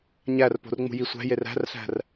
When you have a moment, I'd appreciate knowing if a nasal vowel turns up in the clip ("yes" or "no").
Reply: no